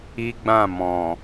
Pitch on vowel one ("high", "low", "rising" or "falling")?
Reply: high